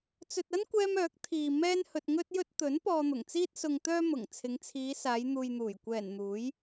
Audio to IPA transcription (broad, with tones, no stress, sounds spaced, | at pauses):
t͡s ɵ˨ t̚ ɐ˥ n kʷ ɛː˧ m œː˨˥ k̚ t̪ʰ iː˨ m ɛː˥ n h ɵ˧ t̚ ŋ ɵ˥ t̚ j ɵ˥ t̚ t̪ ɵ˨˥ n p ɔː˧ n̪ ʊ˨˩ ŋ t͡s iː˥ t̚ s ʊ˨ ŋ t̪ œː˧ m ʊ˨˩ ŋ t͡sʰ ɪ˨˧ ŋ t͡sʰ iː˨˧ s aː˨˧ j n̪ uː˨ j n̪ uː˨˩ j kʷ ɛː˨˩ n n̪ uː˨˥ j